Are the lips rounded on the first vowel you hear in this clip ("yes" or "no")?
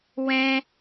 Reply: no